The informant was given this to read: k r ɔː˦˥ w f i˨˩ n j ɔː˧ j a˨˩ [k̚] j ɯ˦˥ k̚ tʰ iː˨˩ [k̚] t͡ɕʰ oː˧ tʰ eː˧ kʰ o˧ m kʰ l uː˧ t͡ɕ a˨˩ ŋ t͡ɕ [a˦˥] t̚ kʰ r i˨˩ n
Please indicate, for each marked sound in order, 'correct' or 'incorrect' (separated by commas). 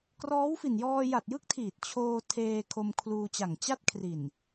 incorrect, incorrect, incorrect